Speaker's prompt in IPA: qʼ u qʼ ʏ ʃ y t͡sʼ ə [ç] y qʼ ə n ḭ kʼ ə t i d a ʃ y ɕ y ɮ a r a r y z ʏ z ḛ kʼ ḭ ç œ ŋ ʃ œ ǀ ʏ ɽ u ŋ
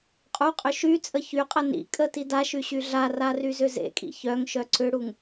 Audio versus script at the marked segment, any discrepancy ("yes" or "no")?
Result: no